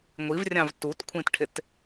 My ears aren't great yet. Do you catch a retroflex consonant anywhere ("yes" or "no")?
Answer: yes